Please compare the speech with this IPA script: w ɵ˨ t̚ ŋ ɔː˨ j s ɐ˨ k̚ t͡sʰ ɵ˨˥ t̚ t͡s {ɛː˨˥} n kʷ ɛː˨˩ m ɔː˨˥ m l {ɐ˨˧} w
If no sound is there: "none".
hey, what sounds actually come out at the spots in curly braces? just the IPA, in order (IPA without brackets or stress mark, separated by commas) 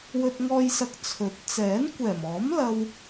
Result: ɛː˨˥, ɐ˧